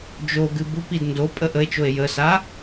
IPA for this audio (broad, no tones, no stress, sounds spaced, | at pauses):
d͡ʒ o ɡ ɨ b u p i d n d o pʼ ə ʔ ə e̯ t͡ʃ o e̯ j ə s a